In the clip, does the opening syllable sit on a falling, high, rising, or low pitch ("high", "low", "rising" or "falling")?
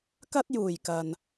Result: high